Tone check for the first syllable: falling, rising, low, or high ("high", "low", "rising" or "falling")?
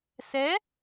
rising